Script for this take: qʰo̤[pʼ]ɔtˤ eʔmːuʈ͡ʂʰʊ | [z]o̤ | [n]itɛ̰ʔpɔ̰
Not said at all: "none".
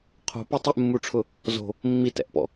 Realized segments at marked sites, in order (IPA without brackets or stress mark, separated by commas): p, z, mː